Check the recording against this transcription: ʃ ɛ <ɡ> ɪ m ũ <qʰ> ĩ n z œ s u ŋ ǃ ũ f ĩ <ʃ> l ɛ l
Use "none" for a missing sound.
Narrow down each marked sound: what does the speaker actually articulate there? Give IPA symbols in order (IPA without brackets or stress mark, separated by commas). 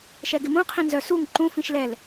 ɡ, qʰ, ʃ